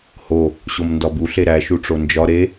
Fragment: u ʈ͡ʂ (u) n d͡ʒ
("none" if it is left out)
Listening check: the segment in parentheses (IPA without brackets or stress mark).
o